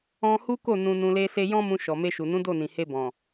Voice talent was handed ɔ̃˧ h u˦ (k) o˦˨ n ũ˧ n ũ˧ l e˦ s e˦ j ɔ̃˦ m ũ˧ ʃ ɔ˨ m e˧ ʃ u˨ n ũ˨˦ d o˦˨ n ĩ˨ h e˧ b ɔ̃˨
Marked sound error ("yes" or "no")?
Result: no